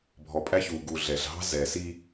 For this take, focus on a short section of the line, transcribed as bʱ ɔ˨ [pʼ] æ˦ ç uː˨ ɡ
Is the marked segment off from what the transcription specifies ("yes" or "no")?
no